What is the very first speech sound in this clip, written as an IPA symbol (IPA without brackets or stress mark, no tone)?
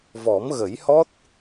v